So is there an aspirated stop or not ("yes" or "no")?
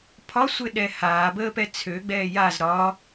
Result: yes